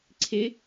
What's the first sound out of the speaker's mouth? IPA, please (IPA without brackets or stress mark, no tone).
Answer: ǀʰ